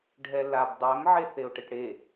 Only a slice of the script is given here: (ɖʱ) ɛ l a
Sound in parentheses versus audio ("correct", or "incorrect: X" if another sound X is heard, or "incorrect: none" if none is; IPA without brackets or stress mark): correct